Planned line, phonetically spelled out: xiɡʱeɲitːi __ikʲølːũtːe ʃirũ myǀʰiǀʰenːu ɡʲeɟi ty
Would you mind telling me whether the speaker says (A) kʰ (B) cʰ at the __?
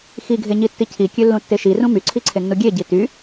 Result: B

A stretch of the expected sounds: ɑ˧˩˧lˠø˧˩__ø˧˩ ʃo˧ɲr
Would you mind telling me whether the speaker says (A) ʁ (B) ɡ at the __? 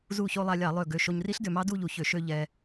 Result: B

